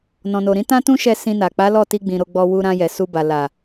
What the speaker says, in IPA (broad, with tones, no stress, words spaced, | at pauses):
nɔ̃˨no˨ɾĩ˨˦ tã˦tũ˦ʃɛ˧ sĩ˧na˨ k͡pa˨˦lɔ˦˨ ti˧ɡ͡bĩ˨ ɾo˧ɡ͡bɔ˧ wu˧ɾã˧jɛ˨ su˧ba˨ la˨